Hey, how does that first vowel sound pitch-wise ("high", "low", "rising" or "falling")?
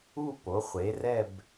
falling